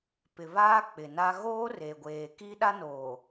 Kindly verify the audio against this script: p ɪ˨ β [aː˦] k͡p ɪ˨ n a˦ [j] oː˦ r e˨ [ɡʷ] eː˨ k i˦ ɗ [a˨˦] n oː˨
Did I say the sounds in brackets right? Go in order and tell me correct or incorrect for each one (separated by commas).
correct, incorrect, correct, incorrect